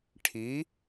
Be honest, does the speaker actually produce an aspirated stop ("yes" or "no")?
yes